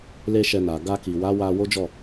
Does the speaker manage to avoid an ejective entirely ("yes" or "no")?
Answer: yes